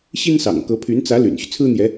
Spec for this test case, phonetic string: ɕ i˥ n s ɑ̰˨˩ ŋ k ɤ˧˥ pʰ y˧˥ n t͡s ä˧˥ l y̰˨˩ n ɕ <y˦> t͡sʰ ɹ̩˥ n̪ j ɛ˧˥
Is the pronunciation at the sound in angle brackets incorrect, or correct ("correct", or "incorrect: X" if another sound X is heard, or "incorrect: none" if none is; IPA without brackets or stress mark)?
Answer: correct